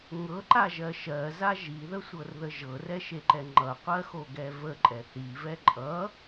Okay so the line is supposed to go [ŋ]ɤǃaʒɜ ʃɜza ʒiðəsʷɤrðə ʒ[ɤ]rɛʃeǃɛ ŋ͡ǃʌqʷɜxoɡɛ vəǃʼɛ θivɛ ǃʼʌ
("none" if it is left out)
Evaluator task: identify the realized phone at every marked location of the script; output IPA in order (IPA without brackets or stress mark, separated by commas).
ŋ, ɤ